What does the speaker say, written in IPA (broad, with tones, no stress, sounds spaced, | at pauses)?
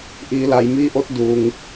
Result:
ʔ iː˩˧ l a˩ j m iː˧˥ ʔ o˧˥ t̚ d uː˩ ŋ